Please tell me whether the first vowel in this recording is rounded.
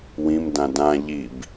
no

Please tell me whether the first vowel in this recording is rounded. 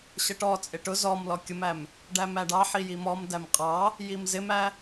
no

